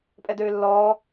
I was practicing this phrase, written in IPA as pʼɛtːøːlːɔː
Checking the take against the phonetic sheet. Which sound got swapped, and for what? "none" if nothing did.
tː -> d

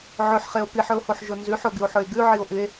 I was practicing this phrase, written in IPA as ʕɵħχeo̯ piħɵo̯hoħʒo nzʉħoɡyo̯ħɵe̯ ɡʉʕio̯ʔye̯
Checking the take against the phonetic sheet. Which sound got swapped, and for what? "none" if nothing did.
none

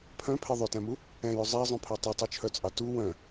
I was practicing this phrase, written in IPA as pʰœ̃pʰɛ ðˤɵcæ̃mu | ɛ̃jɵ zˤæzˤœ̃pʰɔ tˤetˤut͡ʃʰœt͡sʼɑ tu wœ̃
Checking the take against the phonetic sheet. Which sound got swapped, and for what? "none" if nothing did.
c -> t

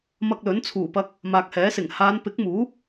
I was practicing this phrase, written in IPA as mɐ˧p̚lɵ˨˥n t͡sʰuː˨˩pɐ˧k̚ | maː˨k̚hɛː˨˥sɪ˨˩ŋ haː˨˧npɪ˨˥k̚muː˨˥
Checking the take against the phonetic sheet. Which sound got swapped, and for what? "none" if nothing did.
p̚ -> k̚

